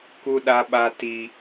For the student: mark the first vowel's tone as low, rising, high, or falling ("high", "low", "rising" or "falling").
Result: high